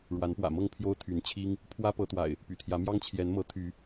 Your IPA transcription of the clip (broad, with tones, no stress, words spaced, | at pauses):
ɻwa˨˦npwä̰˨˩mɤ˥˨ŋ pʰjo˦ʊ̯t̪ʰy˨˦n t͡ɕʰi˦ŋ | pʰwä˦ pɤ˨˦t̪wa̰˨˩ɪ̯ | py̰˨˩t̪ʰjä˨˦mjɑ˦ŋ t͡ɕʰjɛ˨˦nmɤ˨˦ t̪ʰy˨˦